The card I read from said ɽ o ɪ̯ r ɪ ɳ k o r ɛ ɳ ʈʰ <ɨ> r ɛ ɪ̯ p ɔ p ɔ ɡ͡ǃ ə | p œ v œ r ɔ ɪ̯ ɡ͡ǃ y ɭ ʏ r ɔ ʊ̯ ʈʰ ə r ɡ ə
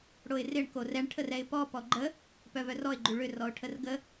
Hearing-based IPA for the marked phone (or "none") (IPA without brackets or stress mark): ə